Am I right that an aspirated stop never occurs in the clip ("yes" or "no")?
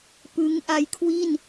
no